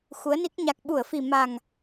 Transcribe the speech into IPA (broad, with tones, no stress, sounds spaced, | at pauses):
x u˨˦ ə̯ n i˦˥ k̚ ɲ a˨˩ k̚ ɓ u˧˩ ə̯ f i˨˩ m a˨˩ ŋ